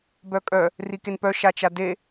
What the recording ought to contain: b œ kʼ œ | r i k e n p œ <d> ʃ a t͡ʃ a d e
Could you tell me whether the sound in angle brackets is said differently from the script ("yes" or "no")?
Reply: yes